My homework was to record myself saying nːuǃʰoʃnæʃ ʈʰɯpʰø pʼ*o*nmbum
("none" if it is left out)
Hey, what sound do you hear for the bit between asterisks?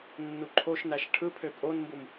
o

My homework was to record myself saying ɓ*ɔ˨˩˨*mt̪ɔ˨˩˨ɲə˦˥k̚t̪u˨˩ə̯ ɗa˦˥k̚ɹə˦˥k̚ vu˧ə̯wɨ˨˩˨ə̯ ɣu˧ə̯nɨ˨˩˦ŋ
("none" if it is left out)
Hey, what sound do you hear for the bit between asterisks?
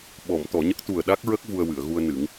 ɔ˨˩˨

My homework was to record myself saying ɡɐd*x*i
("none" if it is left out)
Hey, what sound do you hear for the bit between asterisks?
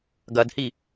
h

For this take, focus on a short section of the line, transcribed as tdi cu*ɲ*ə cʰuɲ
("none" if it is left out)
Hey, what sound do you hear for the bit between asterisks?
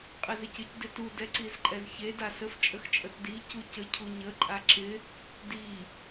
c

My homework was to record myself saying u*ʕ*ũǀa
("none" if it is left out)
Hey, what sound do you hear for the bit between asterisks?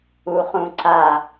χ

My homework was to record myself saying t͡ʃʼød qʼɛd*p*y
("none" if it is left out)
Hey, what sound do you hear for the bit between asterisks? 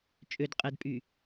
pʼ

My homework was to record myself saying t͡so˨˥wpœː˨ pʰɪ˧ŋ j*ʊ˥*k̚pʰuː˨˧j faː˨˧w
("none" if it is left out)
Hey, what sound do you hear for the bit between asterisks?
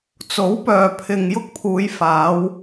ʊ˥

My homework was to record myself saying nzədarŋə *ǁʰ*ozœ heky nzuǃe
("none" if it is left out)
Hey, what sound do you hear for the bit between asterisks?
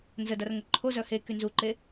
ǃʰ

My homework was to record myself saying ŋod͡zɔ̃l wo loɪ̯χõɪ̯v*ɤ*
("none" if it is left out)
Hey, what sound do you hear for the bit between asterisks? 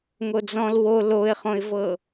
ɤ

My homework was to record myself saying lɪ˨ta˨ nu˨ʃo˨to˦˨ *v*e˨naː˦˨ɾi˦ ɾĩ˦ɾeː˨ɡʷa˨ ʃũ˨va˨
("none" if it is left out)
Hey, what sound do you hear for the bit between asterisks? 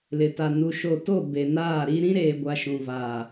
b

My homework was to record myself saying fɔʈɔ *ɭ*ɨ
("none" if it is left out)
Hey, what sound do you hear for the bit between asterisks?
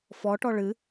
ɭ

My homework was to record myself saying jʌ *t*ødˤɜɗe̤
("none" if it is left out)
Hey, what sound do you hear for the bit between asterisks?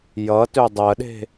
t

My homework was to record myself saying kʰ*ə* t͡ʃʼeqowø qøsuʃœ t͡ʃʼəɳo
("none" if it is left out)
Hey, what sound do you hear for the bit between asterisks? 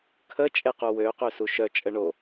ə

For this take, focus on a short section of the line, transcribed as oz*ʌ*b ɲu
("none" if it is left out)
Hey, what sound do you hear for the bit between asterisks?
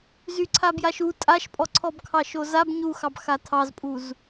a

